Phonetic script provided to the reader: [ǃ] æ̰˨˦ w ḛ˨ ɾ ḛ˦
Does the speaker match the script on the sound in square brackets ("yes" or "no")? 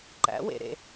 yes